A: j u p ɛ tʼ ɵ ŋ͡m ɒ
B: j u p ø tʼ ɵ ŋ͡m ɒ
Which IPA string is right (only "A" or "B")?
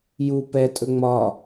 A